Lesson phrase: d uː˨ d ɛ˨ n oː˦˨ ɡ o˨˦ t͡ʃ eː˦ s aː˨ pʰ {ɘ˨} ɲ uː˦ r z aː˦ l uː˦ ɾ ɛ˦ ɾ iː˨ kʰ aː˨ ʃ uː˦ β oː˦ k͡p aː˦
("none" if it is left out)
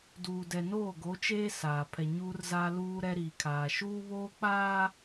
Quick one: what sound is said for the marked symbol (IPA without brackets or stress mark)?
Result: ɛ˨